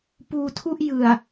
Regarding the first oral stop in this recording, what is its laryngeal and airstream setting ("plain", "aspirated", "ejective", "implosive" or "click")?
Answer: plain